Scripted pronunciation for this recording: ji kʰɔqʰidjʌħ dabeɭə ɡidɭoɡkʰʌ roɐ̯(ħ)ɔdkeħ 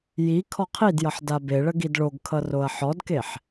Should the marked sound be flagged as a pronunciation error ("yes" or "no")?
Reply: no